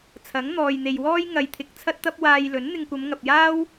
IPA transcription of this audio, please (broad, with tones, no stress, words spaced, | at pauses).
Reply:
t͡sʰɐ˨˥ŋn̪ɔː˨jn̪e˨jwɔː˥j ŋɐ˨jt̪ʰɪ˨k̚ t͡sʰɐ˥t̚t̪ɐ˥p̚ waː˧jlɵ˨˥n n̪ɪ˧ŋkʷɐ˨˧mŋɐ˨p̚jaː˥w